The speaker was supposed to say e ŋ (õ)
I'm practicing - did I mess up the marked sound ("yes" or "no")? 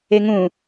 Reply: yes